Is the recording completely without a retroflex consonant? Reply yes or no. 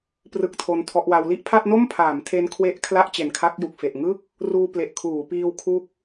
yes